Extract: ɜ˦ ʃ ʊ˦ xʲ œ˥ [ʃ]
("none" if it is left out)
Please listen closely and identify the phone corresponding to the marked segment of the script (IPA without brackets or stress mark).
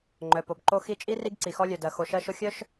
ʃ